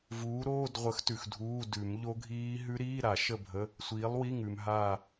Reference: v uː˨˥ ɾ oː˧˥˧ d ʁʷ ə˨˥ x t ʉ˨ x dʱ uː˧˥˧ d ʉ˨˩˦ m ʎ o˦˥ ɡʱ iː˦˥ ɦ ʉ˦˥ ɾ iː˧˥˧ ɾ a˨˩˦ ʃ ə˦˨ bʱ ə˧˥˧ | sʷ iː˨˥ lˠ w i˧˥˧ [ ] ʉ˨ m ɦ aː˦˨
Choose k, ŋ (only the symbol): ŋ